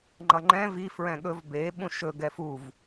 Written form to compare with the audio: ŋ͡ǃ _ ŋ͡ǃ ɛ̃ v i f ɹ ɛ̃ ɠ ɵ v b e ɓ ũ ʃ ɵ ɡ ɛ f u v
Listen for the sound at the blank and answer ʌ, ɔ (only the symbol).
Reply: ʌ